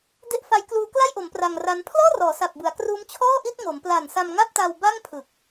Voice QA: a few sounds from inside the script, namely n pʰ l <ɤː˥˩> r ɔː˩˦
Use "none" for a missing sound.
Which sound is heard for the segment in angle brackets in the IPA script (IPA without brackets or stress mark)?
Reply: ɔː˥˩